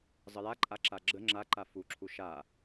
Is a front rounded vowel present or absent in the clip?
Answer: absent